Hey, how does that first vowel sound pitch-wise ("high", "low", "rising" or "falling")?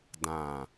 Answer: low